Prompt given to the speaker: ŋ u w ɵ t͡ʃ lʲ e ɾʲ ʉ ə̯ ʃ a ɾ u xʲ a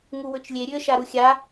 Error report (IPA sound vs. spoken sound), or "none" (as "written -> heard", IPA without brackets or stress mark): none